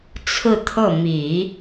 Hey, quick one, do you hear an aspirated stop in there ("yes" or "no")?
yes